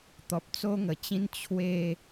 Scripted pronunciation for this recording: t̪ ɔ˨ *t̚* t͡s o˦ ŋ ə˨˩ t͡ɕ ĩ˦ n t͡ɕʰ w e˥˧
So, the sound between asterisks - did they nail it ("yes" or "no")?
no